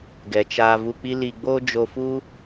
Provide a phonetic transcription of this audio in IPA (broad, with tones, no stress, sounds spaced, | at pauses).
ɡ ɛ˨ t͡ʃ aː˧ v u˧ k͡p i˦ l i˧ ɡ͡b oː˦ d͡ʒ o˧ f u˦